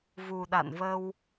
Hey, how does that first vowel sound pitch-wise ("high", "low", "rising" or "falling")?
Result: low